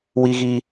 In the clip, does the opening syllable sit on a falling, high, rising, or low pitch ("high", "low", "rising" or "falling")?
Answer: high